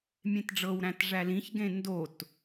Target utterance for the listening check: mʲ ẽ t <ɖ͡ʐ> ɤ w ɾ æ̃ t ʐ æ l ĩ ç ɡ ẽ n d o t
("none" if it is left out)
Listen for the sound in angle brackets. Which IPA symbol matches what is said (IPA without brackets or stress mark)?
ɖ͡ʐ